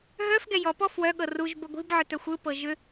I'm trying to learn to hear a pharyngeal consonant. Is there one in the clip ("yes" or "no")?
yes